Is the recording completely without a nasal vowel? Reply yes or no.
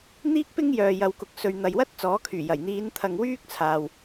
yes